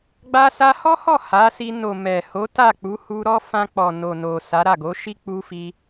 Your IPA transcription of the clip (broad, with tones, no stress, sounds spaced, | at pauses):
ɡ͡b a˧ s a˧ h ɔ˦ h ɔ˦˨ h a˨˦ s i˧ n o˨ m ɛ˨ h o˨˦ t a˦˨ k͡p u˨˦ h u˧ ɾ ɔ˦ f ã˧ k͡p ɔ˨ n o˨ n o˨ s a˨˦ ɾ a˦˨ ɡ o˨˦ ʃ i˦ k͡p u˧ f i˧